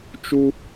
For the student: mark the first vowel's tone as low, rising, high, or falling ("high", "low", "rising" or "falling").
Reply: high